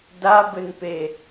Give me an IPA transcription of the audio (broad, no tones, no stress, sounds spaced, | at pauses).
d a b ɘ n p e